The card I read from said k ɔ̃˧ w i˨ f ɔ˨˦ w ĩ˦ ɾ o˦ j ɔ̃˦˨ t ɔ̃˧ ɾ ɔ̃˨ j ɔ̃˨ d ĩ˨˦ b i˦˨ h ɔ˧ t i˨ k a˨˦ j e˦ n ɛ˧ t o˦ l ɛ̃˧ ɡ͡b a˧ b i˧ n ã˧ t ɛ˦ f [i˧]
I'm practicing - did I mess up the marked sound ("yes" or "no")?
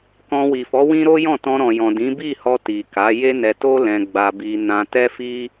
yes